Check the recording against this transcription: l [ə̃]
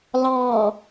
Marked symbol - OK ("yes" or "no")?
no